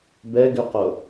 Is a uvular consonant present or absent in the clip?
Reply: present